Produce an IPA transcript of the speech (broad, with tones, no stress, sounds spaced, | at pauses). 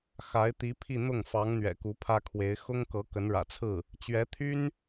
x a˧˥ ɪ̯ t̪ i˧˥ pʰ i˥˧ n̪ ʊ˥˩ ŋ f ɑ˧˥ ŋ n̪ ɥ ɛ̰˨˩ k u˧˥ pʰ ä˥ kʰ w e˧˥ ɪ̯ x ʊ˥ ŋ k ɤ˧˥ k ə˧˥ n ɻ ä̰˨˩ t͡sʰ ɹ̩˥˩ | t͡ɕ ɥ ɛ˧˥ t̪ʰ y˥ n